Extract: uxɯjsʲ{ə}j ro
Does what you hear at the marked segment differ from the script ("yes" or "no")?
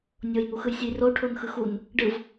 yes